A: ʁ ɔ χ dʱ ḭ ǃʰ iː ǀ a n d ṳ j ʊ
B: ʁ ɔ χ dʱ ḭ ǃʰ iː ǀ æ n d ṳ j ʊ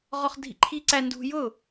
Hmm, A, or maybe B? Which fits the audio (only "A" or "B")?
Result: B